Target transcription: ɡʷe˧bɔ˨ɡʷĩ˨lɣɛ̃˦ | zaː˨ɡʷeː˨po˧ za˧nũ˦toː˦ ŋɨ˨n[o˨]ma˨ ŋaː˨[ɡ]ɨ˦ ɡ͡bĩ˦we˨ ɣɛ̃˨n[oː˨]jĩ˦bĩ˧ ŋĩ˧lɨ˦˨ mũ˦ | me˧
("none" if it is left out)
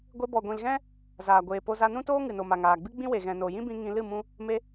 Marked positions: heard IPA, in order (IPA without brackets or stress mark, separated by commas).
o˨, ɡ͡b, o˨